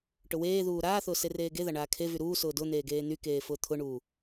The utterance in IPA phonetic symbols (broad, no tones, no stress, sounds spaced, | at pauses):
ʈ ʊ w eː ð uː ɾ aː θ ʊː s e r eː ɡ e ð a ɳ aː kʰ e v y ɾ uː s ʊː d ʊ n̪ eː ɡ eː n̪ y k eː f ʊː t̪ʰ ʊ ɳ uː